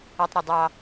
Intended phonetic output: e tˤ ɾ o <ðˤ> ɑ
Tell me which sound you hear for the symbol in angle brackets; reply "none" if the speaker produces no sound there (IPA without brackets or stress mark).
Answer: dˤ